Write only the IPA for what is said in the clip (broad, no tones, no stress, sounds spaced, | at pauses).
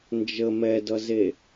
n d͡ʒ ə m ɛ d ʌ z e